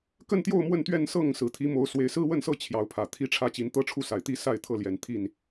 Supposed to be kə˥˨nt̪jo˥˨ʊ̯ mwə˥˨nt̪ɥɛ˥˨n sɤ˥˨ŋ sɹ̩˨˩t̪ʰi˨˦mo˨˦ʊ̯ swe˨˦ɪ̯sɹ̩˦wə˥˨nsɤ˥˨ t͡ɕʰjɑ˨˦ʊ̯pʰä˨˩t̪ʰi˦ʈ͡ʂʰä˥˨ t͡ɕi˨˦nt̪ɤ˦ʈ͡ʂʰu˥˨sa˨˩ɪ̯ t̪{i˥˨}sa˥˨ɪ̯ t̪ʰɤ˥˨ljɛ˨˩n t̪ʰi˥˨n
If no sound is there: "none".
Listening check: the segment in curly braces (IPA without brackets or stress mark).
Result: i˥˨